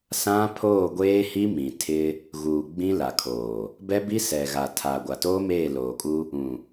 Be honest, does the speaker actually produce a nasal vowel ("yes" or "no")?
yes